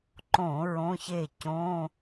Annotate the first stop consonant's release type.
click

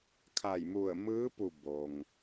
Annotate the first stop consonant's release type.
aspirated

